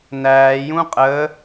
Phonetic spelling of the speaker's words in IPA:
n æː j ũ qʼ əː

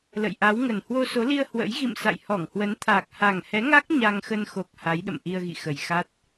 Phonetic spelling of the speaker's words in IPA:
l ə̰˧˨ j ʔ a˨˦ w ŋ ə˨˩ n h w o˧ s o˨˦ l i˧ ə̯ h w ə̰˧˥ j ɣ ḭ˧˨ m s a̰˧˨ j h ɔ˧˩ ŋ h w ə˨˦ n t̪ʰ aː˨˩ k̚ h a˨˩ ŋ h ɛ˨˦ ŋ a˦˥ k̚ ɲ a˧ ŋ x ə˧ n x o˨˩ k̚ h a˨˦ j ɗ ə̰˧˨ m ʔ i˧ ə̯ ɣ ḭ˧˨ x ə˨˩ j x a˦˥ t̚

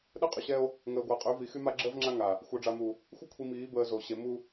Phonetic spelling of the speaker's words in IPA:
ɗ ə˦ qʼ y˨ ɕ ɛ˦ o̯ | ŋ əː˨ ɡʷ a˨ qʼ y˨˦ v i˨ x y˦ m a˦ ɡ͡ǁ əː˦ v ŋ͡ǁ a˦ ŋ a˨ | xʷ œ˨ ɖ͡ʐ a˨ m u˨ | xʷ ə˦ kʷʰ i˨ m iː˨˦ b əː˨ z o˨ ɕ e˨˦ m u˦

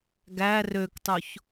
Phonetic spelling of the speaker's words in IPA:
ɡ æ r ø k tˤ o ç

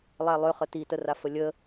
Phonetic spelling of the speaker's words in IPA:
lˠ æ lˠ ø χ ə t i t ə r a f ə lʲ ə

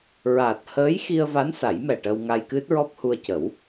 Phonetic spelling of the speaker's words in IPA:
ɹ aː˨˩ t̚ h əː˧˥ j x i˧ ə̯ v a˧˥ n s a˨˩˦ j m ɛ˨˩ ʈ ə˧ w ŋ a˧ j k ɨ˦˥ t̚ ɹ ɔ˦˥ p̚ h u˧ ə̯ c ə˨˩˦ w

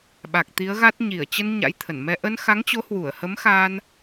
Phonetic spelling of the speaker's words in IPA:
ɓ a˨˩ k̚ t̪ i˨˦ ə̯ ɣ a˦˥ t̚ ɲ i˧˩ ə̯ t͡ɕ ə˧ n ɲ a̰˧˥ j t̪ʰ ə˧˩ n m ɛ˧ ʔ ə˧ n x a˨˦ ŋ t͡ɕ o˨˦ h w u˧˩ ə̯ h ə˨˦ m x a˧ n

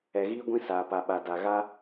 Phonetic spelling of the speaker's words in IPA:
ɛ˨ ɣ iː˦ ɡʷ ĩ˦ s aː˨ p a˨ ɓ a˨ d a˨ ɣ a˦

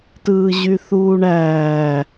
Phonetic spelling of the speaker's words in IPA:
t ɯː ʑ y θ uː ɳ æː

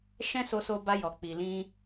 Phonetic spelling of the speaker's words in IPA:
ʃ ɛ̃˦ s o˧ s o˧ b a˧ j ɔ˨ k͡p i˨ l ĩ˧

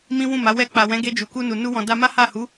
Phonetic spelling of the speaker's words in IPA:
m ĩ˦ w ũ˦˨ m a˨˦ w ɛ˧ k͡p a˨ w ɛ̃˨˦ ɡ e˧ d͡ʒ u˨ k u˧ n u˨ n u˧ w ɔ̃˨ d a˧ m a˦ h a˦˨ h u˨˦

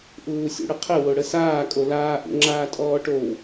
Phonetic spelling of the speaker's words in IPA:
ʔ uː sʲ ṵ ɽ ə qʰ ə w o ɽ ə s aː kʼ o l aː ʔ ṵ ŋ͡ǁ aː tʼ ɔː ʈ o w

